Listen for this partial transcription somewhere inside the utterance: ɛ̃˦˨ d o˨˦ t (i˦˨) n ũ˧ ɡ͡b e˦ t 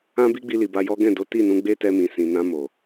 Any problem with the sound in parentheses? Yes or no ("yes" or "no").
no